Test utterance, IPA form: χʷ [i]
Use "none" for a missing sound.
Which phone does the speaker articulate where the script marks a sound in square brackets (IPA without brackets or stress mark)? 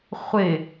ɪ